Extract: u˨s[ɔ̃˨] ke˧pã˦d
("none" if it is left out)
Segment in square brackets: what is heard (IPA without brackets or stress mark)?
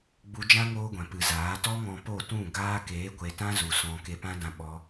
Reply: ɔ̃˨